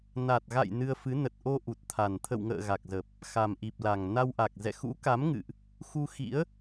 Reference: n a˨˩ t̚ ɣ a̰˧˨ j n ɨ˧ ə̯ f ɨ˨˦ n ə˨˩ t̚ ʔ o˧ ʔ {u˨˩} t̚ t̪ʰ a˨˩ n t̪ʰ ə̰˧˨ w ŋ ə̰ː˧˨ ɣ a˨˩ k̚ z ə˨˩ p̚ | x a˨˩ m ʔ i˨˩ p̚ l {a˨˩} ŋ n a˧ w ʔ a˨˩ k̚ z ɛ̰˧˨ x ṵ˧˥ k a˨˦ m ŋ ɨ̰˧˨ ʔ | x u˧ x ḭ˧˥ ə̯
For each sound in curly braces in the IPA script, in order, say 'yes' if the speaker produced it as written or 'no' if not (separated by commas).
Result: yes, yes